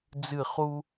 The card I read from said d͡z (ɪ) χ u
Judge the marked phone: incorrect: ɨ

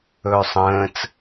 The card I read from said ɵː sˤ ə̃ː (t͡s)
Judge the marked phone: correct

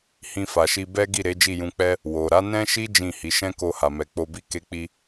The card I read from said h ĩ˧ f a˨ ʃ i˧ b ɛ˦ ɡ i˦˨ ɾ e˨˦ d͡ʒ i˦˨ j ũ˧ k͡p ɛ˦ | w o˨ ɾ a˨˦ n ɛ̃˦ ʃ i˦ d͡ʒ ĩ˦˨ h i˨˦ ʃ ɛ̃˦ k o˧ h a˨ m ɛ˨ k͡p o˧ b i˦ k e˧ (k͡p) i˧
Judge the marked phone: correct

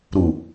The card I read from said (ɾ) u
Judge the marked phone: correct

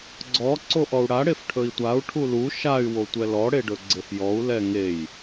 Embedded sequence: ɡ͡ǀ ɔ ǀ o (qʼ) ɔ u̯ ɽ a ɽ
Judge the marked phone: incorrect: ʔ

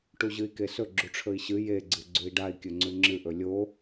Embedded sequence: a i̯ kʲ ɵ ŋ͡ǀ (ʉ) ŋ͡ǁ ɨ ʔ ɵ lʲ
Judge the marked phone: correct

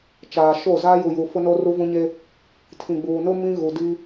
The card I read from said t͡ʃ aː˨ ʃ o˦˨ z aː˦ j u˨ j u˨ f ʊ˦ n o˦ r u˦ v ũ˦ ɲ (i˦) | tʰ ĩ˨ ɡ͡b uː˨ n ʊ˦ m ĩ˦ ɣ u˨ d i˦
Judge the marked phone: incorrect: e˦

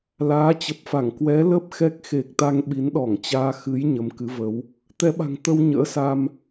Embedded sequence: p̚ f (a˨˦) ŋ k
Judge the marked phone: incorrect: a˧˩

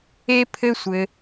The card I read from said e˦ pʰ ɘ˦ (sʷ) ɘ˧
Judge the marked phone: correct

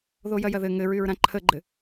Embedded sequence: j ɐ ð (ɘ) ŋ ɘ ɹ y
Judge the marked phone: correct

